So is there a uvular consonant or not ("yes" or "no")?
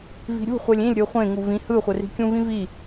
yes